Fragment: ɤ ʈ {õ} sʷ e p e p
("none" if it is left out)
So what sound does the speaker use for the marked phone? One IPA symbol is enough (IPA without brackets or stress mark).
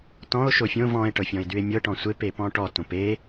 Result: ɔ̃